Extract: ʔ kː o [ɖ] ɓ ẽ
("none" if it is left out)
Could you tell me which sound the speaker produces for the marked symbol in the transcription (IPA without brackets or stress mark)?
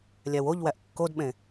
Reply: d